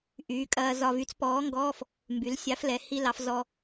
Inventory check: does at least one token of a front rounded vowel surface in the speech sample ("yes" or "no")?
yes